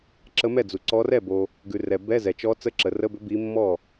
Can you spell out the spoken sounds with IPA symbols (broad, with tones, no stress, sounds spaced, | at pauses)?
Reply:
ǁ ə˧˥ m ɛ˥˩ d͡z u˨ ǀ ɔ˧˥ r ɛ˥˩ b o˨ | ɡ ʉ˨ r ɛ˨ b ɛ˧˥˧ z ɛ˨ t͡ʃ ɔ˧˥ t͡s ə˧˥˧ ǁ ə˨ r ə˧˥˧ b ʏ˧˥ b i˧˥ mː ɔ˥˩